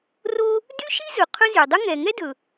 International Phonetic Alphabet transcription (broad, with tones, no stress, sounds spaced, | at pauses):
r o˥ | d y˥ ʃ i˥ z ɵ˩ qʰ ɵ˥ z y˩ dˤ ɵ˥ ŋ ɛ˩ ŋ ɛ˥ d ɵ˩